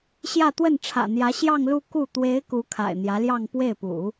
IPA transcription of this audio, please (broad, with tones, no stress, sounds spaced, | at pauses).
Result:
ɕ j ä˥˧ t̪ w ə˥˩ n ʈ͡ʂʰ ä̰˨˩ n̪ j ä˧˥ ɕ j ɑ˥˧ ŋ l u˥˧ k u˥˩ t̪ w e˧˥ ɪ̯ k u˧˥ kʰ a̰˨˩ ɪ̯ n̪ j ä˧˥ l j ɑ˥˧ ŋ p w e˥˩ ɪ̯ p ṵ˨˩˦